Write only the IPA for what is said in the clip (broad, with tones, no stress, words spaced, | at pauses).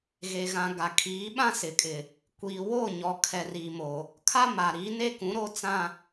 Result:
ɣe˨ɣã˨ ɡa˨kʰiː˨˦ ɓã˦sɪ˨kʼɪ˨ | kʷiː˨wo˦˨ɲɔ˨kʰɛ˨ ri˨mo˨ | kʰa˦ma˨ɾi˨˦ ne˦kũ˨˦ ɾo˦t͡sã˦